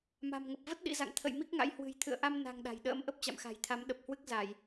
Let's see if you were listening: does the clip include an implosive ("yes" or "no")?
yes